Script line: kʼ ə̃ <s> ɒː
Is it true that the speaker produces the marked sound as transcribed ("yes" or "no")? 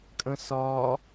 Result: yes